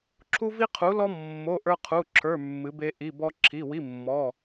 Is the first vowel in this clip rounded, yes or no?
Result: yes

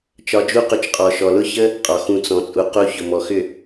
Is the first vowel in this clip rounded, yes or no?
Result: yes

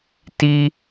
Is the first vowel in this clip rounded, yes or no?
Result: no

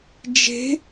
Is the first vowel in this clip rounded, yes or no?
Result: no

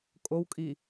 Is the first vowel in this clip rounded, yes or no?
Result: yes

